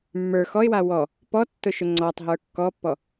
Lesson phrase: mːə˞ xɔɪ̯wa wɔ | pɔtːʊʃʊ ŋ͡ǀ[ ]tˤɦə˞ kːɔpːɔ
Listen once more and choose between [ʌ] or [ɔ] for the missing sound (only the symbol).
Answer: ɔ